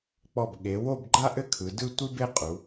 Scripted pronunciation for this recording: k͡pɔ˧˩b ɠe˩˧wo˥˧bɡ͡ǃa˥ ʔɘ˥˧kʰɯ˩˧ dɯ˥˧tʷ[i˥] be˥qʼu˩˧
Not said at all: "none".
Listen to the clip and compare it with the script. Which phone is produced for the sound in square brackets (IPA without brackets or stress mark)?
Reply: i˥